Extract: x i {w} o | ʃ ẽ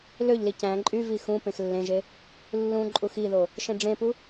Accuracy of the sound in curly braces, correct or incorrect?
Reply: incorrect